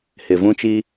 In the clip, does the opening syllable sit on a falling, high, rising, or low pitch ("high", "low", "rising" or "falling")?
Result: low